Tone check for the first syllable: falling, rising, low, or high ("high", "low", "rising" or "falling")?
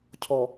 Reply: low